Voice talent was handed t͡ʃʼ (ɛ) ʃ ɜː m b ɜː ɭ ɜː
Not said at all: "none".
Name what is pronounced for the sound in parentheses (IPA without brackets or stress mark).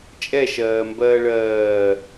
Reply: ɛ